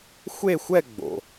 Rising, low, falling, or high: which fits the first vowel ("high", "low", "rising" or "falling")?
falling